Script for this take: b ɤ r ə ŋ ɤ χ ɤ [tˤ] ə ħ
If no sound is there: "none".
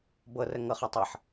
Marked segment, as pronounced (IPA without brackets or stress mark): tˤ